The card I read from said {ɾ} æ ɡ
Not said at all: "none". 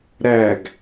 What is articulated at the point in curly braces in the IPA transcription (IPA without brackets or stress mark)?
ɾ